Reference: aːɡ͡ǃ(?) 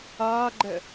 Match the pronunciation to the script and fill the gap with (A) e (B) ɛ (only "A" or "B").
B